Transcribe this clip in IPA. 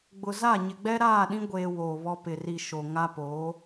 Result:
ɡ͡bʊ˨za˦˨ ɲɪ˨ɡ͡bɛ˦ɾaː˦˨ɗĩ˦ ɡʷeː˦woː˨βɔ˦ pɪ˨ri˨ ʃo˨ŋa˦poː˨˦

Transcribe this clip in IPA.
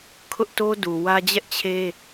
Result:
kʰʊ˦ʔto˦du˨wä˦ d͡ʑɛ˦ʔt͡ɕʰe˦

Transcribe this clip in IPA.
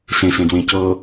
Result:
sẽsẽdwẽ cɤ

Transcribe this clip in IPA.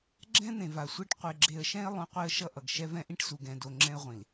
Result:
ɡ͡ǁɛ̃˦n̪ẽ˨ va˨sʷɛ˦ʈ qʷe˨ɡ͡ǁe˨ə̯ʃɛ̃˦ɪ̯ lˠõ˦qʷe˦ə̯ʃʌ˦ʔʌ˨ɡ ʃɛ˦vɛ̃˦ʔĩ˦ʈsu˨ ɡɛ̃˨do˨ ŋ͡ǁɛ̃˦ə̯ʁʷĩ˨l

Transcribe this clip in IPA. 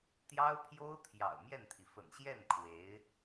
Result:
t̪jɑ˥ʊ̯pʰjo˥ʊ̯ t̪ʰjɑ̰˨˩ʊ̯mjɛ˥˩nt̪ʰi˩ fə̰˨˩nɕjɛ˥˩n kʰwe˧˥ɪ̯

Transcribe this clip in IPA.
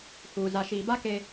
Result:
huː˨ za˨ʃiː˨ba˦ ke˦

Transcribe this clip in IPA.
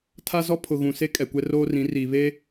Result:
tʰa˦zɔ˦ pʰʊ˨ɣũ˨ se˦kʼɛ˨kʷɛ˦ roː˦rĩ˨˦ riː˨ βe˦

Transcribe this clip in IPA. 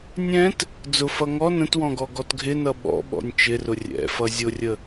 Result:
nʲɛ̃t | d͡zʊ fʌŋɔ nə̃twɔ̃ɡɔ ɡɔtɡʱɪnʌ ɓɔ̰ɓɔ̰nʲ t͡ʃɪrʊ rʲɛ̰fʌ zʲʊrʲə

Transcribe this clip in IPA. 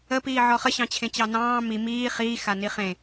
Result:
əpiː ʕɔχəɕɑ̃ t͡ɕʰẽt͡ɕɑnɑ̃ː mi miː χiːxa niχẽ

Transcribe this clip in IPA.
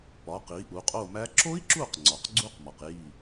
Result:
pɒ˩˧qi˩˧ ʔu˩˧qʼo˦˨mæ˦˥ ǁo˦˥i̯ǁu˦˨qŋ͡ǀɒ˩q ɡ͡ǀu˦˥qmɒ˩q ji˦˨

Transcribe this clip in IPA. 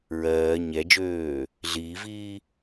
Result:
ɹɜː ɲɛd͡ʒøː | ɮiːviː

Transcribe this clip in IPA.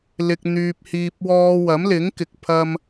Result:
lɪ˧k̚n̪yː˧p̚ hiː˧p̚ wɔː˧ wɐ˨˥mlɪ˨˥ŋ kɪ˨k̚pʰɐ˧m

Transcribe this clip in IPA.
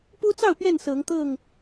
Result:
pu˦t͡sɑ˥˨ʊ̯ pɥɛ˥˨n sɤ˨˦ŋt̪ɤ˥˨ŋ

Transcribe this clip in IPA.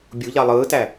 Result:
bʲuʎɑ lˠɯːtæ

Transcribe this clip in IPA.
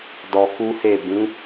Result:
dɔ˧ku˦he˦˨ bĩ˨˦

